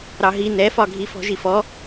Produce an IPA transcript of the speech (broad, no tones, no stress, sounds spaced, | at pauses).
ɾ ɑ ɦ i n ɛ f ɒ ɡʱ i f ɔ̤ ʒ i f ɔ